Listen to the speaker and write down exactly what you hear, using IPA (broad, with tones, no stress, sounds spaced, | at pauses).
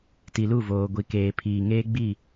t i˨ l u˦˨ v oː˨ ɡʷ i˨ k eː˨ pʰ iː˨ ŋ eː˦ ɡ͡b i˦˨